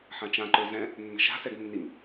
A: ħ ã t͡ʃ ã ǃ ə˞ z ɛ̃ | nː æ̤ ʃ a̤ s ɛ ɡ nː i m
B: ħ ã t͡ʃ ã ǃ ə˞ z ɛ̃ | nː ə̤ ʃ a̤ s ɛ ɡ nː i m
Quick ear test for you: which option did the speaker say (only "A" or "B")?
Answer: B